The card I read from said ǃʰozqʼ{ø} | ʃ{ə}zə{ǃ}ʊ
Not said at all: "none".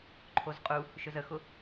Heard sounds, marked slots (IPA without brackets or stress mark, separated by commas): u, ɵ, x